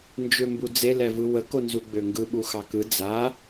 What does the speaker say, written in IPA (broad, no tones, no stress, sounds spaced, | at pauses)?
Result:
n d͡ʒ ø m b u d͡z e l ɛ v ɯ w ə k o n z u ɡ͡b ø ŋ ɡ ɯ ɓ u x ɑ k ɯ d͡z a